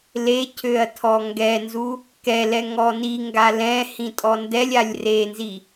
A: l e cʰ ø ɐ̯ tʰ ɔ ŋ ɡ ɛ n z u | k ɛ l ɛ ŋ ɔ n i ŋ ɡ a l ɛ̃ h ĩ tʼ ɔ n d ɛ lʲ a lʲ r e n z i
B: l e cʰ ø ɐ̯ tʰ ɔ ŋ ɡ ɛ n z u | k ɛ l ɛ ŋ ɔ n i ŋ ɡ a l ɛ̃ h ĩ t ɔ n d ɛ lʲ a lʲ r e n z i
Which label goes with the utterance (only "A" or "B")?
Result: A